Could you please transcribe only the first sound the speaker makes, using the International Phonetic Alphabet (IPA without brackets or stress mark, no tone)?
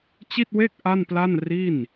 t͡ɕ